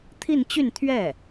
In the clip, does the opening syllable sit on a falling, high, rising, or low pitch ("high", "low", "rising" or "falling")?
falling